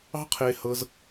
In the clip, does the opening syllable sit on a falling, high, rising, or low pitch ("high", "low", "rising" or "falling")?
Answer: high